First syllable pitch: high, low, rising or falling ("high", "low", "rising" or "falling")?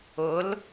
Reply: rising